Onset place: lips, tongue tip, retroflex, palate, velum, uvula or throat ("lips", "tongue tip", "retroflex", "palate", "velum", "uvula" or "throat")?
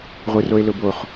uvula